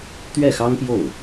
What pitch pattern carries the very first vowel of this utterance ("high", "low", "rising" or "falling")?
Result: falling